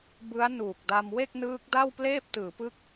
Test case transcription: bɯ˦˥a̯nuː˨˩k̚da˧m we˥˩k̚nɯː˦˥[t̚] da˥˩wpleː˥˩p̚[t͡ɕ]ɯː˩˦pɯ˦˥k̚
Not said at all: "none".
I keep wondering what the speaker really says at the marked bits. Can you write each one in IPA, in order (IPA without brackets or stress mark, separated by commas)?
k̚, t